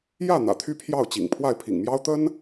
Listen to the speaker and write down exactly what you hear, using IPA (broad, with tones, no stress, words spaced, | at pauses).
jä˥˩ n̪ä̰˨˩t̪ʰy˥pʰjɑ˥˩ʊ̯ t͡ɕḭ˨˩ŋ pʰwa˥˩ɪ̯pʰḭ˨˩ŋmjɑ˥ʊ̯ t̪ə˥n